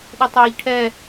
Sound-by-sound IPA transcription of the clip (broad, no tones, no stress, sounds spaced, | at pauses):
ɗ u tˤ iː ʎ ʈʰ ɛ